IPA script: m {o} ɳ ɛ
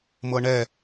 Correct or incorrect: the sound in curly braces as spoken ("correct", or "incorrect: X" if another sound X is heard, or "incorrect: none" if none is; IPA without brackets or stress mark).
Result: incorrect: ɤ